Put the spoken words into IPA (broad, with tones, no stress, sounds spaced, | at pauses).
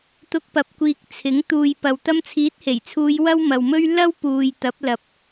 t̪ ʊ˧ k̚ p ɐ˨ p̚ kʷ iː˨ k̚ t͡sʰ ɪ˨˥ ŋ t̪ uː˨ j p ɐ˨ w t̪ ɐ˧ m t͡sʰ iː˨˥ t̚ h e˨˩ j t͡sʰ uː˨˧ j w ɐ˥ w m ɐ˨ w m ɵ˥ ɥ l ɐ˥ w p uː˨ j t̪ ɐ˨˥ p̚ l ɐ˨ p̚